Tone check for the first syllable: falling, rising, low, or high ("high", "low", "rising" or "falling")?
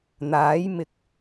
rising